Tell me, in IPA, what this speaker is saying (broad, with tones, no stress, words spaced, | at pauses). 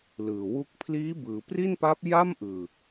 lɯː˨˩wu˦˥k̚ pʰliː˦˥bɯː˩˦pri˥˩npa˦˥p̚ ja˥˩mʔɯː˨˩